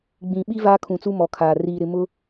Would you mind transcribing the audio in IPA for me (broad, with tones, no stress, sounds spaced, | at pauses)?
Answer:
ɡ͡b ĩ˨ ɓ i˦ v aː˦ kʰ ũ˨ t͡s u˦ m ɔ˨ kʰ aː˨ r iː˨ ɾ ɪ˨ m ʊ˦